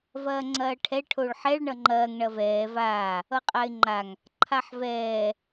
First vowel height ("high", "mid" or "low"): low